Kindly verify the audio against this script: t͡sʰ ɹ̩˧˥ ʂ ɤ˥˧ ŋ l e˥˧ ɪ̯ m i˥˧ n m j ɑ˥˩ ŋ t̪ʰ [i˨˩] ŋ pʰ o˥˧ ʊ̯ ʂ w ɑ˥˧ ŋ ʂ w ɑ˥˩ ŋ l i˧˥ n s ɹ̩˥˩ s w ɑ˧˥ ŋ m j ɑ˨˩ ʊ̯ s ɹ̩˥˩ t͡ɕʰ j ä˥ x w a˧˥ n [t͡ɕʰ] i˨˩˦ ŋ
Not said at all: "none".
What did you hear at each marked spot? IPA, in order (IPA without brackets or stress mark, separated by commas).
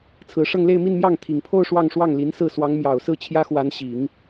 i˨˩, ɕ